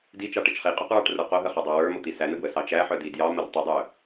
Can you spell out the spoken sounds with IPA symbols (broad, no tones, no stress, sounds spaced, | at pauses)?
d i t͡ʃ ɑ ʈ ə t͡ʃ χ i qʼ œ q ɹ ɑ ʈ r ə˞ q o ɦ ə χ ɑ dˤ ɑ w ə˞ m o t̪ i s æ n ə ɡ w ə s ɑ t͡ʃ æ ħ œ d i d j ɑ m ə r tˤ ə dˤ œ